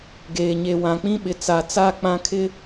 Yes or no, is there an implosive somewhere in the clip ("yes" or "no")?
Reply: yes